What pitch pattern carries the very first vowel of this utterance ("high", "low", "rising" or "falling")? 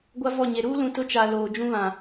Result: high